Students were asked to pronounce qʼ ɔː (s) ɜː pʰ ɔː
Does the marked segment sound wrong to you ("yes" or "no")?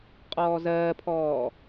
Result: yes